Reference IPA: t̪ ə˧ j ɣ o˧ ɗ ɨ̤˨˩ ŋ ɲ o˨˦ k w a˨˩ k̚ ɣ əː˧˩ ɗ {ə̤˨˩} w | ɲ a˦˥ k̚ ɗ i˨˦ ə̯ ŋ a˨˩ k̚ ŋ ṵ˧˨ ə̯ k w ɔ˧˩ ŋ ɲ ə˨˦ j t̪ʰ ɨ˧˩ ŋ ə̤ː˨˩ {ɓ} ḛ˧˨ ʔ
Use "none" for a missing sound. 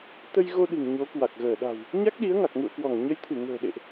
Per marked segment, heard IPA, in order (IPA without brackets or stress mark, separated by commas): a̤˨˩, ɗ